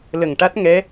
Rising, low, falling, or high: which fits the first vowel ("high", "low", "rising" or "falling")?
low